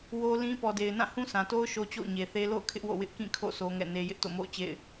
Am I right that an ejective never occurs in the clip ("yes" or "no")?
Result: yes